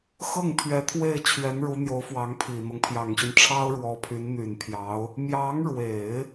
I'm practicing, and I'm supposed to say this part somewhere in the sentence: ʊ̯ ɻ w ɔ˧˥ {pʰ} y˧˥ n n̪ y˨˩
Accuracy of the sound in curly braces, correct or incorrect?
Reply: correct